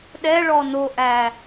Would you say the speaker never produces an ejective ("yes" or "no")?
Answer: yes